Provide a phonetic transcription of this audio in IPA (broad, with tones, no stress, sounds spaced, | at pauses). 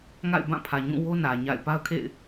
ŋ a̰˦˨ ɪ̯ b ã˦˨ pʰ ä˨ ɲ ũ˦˨ w o˦ n ä˨ ɲ a̰˦˨ ɪ̯ p a˦ ʊ̯ kʰ ḛ˦˨ ɪ̯